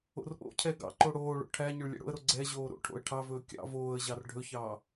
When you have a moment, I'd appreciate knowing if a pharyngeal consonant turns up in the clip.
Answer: no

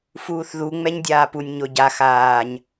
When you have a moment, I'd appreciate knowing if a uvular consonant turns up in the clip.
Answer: no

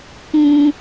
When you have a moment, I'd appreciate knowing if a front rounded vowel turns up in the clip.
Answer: no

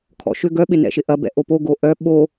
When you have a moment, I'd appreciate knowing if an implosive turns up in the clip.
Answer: yes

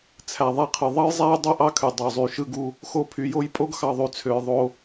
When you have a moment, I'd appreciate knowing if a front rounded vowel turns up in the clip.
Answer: yes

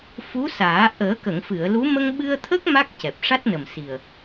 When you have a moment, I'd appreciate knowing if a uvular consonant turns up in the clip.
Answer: no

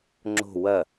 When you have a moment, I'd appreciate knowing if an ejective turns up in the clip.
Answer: no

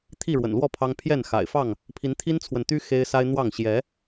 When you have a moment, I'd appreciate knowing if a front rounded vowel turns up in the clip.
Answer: yes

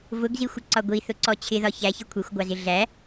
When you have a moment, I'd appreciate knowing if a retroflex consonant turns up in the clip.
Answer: no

